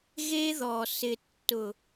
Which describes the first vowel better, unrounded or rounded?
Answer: unrounded